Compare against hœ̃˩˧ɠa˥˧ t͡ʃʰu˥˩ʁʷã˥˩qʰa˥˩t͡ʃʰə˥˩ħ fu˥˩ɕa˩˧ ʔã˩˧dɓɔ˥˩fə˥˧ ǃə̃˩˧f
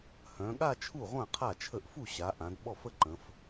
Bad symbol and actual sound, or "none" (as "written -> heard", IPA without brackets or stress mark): ħ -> ʔ